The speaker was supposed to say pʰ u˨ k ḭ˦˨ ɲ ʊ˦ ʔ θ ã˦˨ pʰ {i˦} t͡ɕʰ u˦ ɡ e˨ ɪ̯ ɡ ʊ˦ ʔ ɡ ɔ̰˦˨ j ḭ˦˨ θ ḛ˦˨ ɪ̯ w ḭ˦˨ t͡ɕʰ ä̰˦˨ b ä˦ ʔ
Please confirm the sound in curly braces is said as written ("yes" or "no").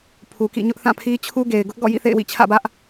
yes